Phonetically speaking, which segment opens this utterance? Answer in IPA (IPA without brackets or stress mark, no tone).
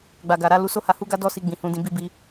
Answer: ɡ͡b